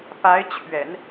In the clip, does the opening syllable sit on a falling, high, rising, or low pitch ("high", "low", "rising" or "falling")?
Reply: rising